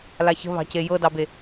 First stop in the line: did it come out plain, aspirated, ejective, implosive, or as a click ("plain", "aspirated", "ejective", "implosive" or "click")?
plain